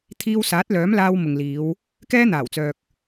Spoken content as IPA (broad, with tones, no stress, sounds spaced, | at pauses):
t̪ʰ iː˧ w s aː˨˥ t̚ l œː˨˥ m l aː˧ w m ʊ˨ ŋ l iː˨˧ w | k ɛː˥ n̪ aː˨˩ w t͡s œː˨ k̚